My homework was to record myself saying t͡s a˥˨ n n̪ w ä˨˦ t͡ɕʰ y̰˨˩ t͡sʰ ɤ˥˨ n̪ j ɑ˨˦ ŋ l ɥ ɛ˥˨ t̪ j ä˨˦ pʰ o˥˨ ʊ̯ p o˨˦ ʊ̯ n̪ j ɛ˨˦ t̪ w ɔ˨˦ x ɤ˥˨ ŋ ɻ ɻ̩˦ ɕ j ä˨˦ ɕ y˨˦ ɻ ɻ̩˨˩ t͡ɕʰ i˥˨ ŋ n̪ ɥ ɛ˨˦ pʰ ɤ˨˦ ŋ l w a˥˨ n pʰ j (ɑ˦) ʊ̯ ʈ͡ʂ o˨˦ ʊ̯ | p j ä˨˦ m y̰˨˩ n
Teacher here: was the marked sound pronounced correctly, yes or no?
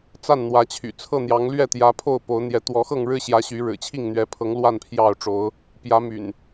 no